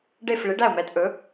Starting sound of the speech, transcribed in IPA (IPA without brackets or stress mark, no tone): ɖ